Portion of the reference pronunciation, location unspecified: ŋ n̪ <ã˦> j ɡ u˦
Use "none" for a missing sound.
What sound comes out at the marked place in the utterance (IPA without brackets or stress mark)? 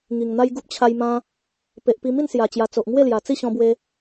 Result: a˦